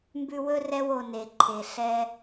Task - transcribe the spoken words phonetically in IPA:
m b ʉ˦ w ɵ˥ r ɛ˦ w o˨ n e˩ ǃʰ e˩ ɬ ɛ˨

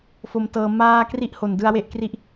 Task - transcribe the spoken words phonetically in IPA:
f o˧ m t ɤː˧ m aː˥˩ k r i˥˩ ʔ h o˨˩ n d ɯ˧ a̯ w e˥˩ ʔ k r i˦˥ ʔ

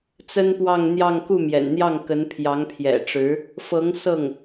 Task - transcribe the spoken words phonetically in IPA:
t͡s ə˥ n p w ɑ˥˧ ŋ n̪ j ɑ˥˧ ŋ k u˥˩ m j ɛ̰˨˩ n n̪ j ɑ˥˩ ŋ k ə˧˥ n pʰ j ɑ˧˥ ŋ pʰ j ɛ̰˨˩ ʈ͡ʂ ɻ̩˧˥ | f ɤ˧˥ ŋ s ɤ˥˩ ŋ

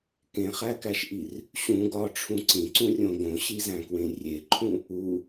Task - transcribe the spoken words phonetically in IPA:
k ẽ χ æ k æ ʃ ʔ i r | ɕ ũ ɡ ɒ ʈ͡ʂʰ ũ ǀ ĩ ǀ ũ rʲ õ ɡ õ ɕ i z æ̃ k w ẽ rʲ e ǃʰ ũ | u

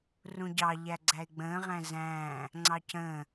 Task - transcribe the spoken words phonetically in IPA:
r ũ ɟ ɑ ʎ æ ɡ͡ǀ æ ɪ̯ ɡ͡b ə̃ː ʁ æ̃ z æ̃ː | ŋ͡ǀ ɑ c ə̃ː

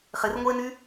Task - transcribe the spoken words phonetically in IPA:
χ ɪ r ŋʷ e n y

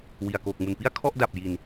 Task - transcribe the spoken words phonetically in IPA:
w i˨˩ a̯ k oː˨˩ k̚ m u˨˩ n p i˥˩ a̯ kʰ ɔ˥˩ ʔ d a˨˩ p̚ j i˨˩ n

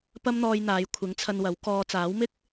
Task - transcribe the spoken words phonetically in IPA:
p ɐ˥ m n̪ ɔː˧ j n̪ aː˨˧ j kʷʰ ɪ˨˥ ŋ t͡sʰ ɐ˧ n w ɐ˨˥ w k ɔː˨˧ t͡s aː˨˥ w m ɪ˥ k̚

